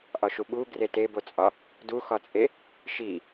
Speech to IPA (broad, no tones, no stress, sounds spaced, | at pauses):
ʔ ɒ ʃ u ɓ u ɡ r e t e b o t͡sʼ ɒ | d u x ɒ t͡sʼ e | ʃ i